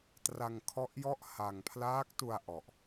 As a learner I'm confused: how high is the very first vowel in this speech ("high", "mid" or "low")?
low